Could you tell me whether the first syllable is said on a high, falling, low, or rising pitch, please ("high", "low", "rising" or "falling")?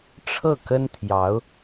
falling